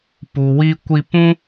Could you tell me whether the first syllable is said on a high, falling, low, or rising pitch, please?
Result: low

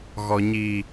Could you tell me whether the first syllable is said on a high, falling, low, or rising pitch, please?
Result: low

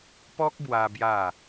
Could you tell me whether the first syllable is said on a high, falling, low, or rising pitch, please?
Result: high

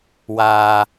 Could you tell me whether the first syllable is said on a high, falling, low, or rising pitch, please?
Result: low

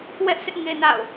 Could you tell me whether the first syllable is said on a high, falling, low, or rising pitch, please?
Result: high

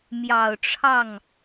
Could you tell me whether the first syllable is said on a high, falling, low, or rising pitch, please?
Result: low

